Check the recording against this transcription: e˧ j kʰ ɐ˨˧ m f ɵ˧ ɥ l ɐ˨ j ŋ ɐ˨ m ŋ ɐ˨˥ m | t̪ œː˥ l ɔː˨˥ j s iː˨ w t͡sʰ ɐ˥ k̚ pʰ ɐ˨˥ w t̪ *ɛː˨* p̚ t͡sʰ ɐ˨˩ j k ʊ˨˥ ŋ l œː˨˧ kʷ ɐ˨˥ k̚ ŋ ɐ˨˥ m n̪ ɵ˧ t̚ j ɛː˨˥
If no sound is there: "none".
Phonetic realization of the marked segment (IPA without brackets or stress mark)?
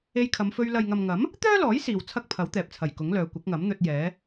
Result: ɛː˨